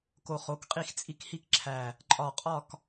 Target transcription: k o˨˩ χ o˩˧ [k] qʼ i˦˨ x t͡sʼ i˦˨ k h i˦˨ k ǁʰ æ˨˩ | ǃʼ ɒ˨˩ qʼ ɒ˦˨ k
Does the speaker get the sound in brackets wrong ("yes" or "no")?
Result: no